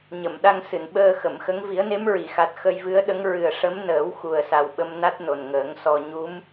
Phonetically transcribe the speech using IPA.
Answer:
ɲ ə˨˩˨ m ɗ a˧ ŋ s ɨ˨˩˨ n ɓ əː˧ x ə˨˩˨ m x ə˧˥ ŋ v i˨˩˦ ə̯ n e˧˥ m ɹ i˨˩˨ x a˨˩ t̚ x ə˧ j v ɨ˧˥ ə̯ ɗ ə˧˥ ŋ ɹ ɨ˨˩ ə̯ ʂ ə˧˥ m n əː˨˩˦ w x u˨˩ ə̯ s a˨˩ w ɓ ə˧ m n a˦˥ t̚ n o˨˩ n ŋ əː˨˩˦ ŋ s ɔ˧ ɲ u˧˥ m

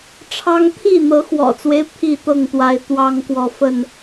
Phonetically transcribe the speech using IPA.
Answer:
ʈ͡ʂʰ ɑ˦ ŋ t̪ʰ i˥˨ n̪ ɤ˨˦ x w ɔ̰˨˩ t͡s w e˦ ɪ̯ pʰ i˥˨ t̪ ɤ˥˨ ŋ t̪ w a˨˦ ɪ̯ t̪ w ɑ˦ ŋ k w ɔ˨ f ə˥˨ n

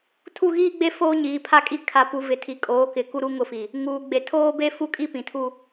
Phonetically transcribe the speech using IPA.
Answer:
tʰ u˦˨ ɣ iː˦ ɡ͡b e˦ f oː˦ ɲ iː˨ pʰ a˦ kʼ i˦˨ kʰ a˨ p u˨ v ɪ˨ tʰ i˨ kʼ oː˨˦ k ɪ˨ k u˦ ɾ u˦ ŋ ʊ˦˨ f i˨ | ŋ uː˨ ɡ͡b e˨ tʰ oː˦ b e˦ f u˦ kʼ i˦ p ĩ˨ tʰ u˦

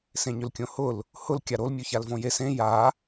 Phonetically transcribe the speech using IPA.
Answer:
s ẽ ɲ ʏ l kʲ õ h ʊ l | h ʊ l kʲ a ɾ o l mʲ o ç a l v õ j e s ẽ j a

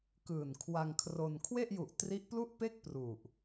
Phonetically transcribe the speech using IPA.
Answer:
k ɯː˨˩ n kʰ w a˧ ŋ kʰ r o˧ n kʰ w e˥˩ ʔ j u˨˩ ʔ t r i˦˥ ʔ p l u˥˩ ʔ p e˥˩ k̚ p r u˨˩ ʔ

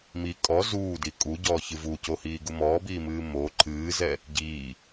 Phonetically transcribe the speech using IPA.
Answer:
m i kʼ ɔ z uː d i kʼ u ɟ ɔː ç ɨ v u c o h iː ɡ u m ɔː b iː m ɨː m o ǃʰ ɨː z ɛ | ɟ iː

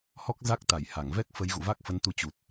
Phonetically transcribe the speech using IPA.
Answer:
h ɔ˦˥ k̚ z a˦˥ k̚ t̪ a˧˩ j h a˧˩ ŋ v ɛ˦˥ k̚ f ə˨˦ j ɣ ṵ˧˨ v a˦˥ k̚ f ə˨˦ n t̪ u˧ t͡ɕ u˨˩ t̚

